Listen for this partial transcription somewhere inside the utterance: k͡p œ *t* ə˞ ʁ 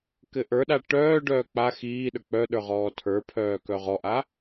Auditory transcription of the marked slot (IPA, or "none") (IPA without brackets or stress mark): ɗ